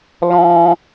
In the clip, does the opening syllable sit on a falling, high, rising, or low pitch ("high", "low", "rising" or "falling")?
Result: high